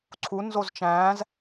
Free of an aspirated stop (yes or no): no